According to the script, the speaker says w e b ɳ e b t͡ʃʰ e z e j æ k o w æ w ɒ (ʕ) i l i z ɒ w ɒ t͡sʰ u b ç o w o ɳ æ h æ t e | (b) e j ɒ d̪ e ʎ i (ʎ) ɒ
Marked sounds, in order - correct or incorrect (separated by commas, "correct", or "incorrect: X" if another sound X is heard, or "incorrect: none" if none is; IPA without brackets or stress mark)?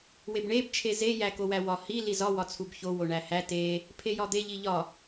incorrect: h, incorrect: pʰ, correct